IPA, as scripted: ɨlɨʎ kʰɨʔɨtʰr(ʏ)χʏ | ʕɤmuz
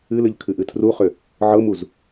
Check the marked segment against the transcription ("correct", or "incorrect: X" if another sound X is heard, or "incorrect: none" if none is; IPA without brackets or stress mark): incorrect: u